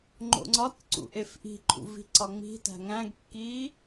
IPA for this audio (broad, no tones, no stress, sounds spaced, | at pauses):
ŋ͡ǃ o̰ ŋ͡ǀ ɒ t ǀ ṵ ʔ e f ʔ i̤ ǃʰ ṵ v i̤ ǀ ɒ ŋ͡m i̤ t æ̤ ŋ æ̃ ɡ kː i